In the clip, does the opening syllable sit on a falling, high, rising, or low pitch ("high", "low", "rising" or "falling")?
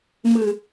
low